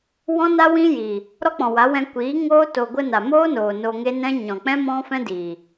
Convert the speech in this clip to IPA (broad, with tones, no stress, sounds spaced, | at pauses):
w ɔ̃˦ n a˦ w ĩ˦ j i˨ | ɾ ɔ˦ k͡p ɔ̃˨ w a˨˦ w ɛ̃˧ kʷ iː˨˦ ŋ oː˦ t o˨ ɡʷ ə˧ n a˨ m oː˦ n oː˨ n o˧ ŋ e˦ n ɛ̃˦ ɲ ɔ̃˨ k͡p ɛ̃˦ m ɔ̃˦ f ɛ̃˦ d iː˨